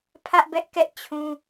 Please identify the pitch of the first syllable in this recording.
high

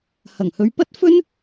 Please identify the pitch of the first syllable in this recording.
low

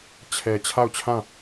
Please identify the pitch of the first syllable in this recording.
low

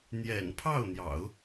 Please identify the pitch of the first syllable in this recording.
low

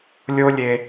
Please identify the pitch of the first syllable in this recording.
high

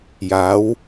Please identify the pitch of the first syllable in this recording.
rising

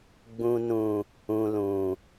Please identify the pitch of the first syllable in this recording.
low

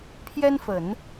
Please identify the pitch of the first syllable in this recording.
high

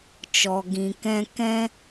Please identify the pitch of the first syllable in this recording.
low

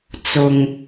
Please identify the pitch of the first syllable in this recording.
low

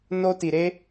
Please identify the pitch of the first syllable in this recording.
high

